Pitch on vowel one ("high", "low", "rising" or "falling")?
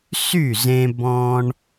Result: falling